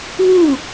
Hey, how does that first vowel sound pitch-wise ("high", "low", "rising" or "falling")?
falling